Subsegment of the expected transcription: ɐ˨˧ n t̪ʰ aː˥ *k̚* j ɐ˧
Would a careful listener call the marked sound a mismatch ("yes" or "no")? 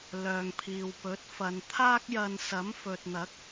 no